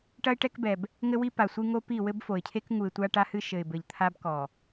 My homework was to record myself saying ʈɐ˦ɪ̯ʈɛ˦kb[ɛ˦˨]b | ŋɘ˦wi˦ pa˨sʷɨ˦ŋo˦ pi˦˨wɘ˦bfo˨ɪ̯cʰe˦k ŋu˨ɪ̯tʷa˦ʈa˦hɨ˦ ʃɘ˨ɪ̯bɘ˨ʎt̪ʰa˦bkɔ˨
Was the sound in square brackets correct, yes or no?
no